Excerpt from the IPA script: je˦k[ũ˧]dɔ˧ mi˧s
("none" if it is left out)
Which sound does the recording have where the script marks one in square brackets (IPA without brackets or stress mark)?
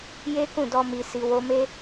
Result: ũ˦˨